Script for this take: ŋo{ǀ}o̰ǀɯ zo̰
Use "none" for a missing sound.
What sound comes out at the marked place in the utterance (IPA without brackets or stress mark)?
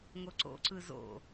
ǀ